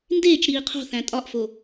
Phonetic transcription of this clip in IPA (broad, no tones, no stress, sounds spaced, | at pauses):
n d eː t͡ʃ ɾ iː qʰ o̤ θ æ̃ tʼ ɒ ʔ f o